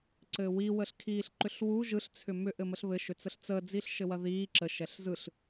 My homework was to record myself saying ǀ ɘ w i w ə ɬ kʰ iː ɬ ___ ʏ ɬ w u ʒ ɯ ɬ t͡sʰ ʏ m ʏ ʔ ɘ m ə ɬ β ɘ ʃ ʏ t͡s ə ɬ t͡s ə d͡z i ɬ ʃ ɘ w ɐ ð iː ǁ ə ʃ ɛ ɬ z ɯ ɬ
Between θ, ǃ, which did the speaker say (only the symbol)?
ǃ